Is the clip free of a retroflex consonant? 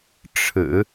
no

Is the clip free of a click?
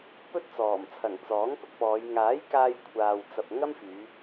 yes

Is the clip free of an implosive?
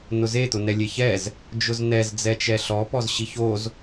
yes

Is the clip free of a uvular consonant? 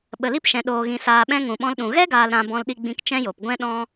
yes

